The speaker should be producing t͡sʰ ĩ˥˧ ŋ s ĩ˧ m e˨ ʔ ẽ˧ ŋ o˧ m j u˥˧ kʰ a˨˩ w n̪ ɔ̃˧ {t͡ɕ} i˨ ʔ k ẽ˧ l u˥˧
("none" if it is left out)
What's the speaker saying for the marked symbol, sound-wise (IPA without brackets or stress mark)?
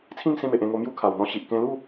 ɕ